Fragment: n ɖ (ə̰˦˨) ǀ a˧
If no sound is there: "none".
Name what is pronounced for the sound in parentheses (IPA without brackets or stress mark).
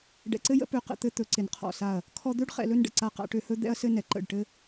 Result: ə̰˨